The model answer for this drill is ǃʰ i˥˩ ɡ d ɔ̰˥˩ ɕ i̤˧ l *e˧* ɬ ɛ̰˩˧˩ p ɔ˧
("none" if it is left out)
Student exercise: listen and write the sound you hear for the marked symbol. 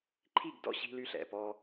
y˧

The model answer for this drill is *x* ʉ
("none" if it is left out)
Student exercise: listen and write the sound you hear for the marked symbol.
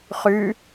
χ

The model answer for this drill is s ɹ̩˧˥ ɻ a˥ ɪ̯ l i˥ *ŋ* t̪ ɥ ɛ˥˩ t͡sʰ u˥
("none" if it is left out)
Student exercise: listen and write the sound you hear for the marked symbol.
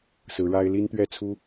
n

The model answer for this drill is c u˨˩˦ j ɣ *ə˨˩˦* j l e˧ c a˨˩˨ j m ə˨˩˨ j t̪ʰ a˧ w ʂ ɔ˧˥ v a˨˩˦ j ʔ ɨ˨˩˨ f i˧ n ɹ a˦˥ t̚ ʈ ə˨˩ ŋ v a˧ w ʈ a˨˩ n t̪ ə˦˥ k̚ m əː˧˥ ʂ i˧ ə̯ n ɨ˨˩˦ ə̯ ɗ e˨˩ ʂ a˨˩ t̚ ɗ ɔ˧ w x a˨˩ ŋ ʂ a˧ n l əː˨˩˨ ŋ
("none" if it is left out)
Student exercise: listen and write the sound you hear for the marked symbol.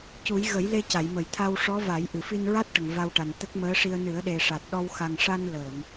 ə˨˩˦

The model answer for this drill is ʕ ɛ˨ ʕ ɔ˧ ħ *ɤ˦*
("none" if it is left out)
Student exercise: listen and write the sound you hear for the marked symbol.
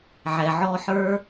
ə˞˦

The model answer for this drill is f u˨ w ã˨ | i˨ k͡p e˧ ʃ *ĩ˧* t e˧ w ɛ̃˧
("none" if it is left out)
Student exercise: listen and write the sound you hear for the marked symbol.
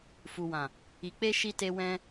i˧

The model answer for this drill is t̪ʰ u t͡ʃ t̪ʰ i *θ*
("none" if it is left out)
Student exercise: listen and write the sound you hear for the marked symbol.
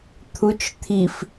f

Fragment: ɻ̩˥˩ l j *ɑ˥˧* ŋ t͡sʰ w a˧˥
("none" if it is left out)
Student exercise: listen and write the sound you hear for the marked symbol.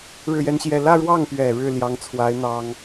ɑ˧˥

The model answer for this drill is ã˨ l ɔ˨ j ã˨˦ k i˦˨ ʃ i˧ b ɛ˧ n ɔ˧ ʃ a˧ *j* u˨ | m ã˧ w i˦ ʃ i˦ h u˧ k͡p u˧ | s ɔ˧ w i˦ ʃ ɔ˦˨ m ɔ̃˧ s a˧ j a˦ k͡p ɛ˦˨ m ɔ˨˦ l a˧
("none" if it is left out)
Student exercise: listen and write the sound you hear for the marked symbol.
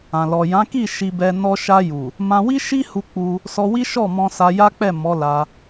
j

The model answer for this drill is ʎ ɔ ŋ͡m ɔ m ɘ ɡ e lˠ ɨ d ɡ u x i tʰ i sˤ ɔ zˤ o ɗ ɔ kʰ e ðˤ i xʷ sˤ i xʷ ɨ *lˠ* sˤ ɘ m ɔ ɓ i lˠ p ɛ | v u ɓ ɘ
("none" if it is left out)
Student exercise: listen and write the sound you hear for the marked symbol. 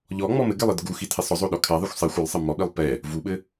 lˠ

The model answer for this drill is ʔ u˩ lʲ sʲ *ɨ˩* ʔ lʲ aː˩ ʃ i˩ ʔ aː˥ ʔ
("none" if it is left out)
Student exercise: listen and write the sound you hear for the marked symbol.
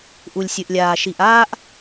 ɨ˩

